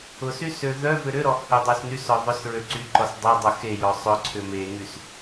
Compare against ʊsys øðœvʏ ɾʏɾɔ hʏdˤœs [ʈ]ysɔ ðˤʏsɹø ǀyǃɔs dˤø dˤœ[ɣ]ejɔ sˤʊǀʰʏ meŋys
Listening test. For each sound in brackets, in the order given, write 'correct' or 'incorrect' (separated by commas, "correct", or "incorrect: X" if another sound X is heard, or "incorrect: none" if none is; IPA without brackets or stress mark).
incorrect: n, incorrect: x